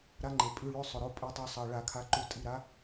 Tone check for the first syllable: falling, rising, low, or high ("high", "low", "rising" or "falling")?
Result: rising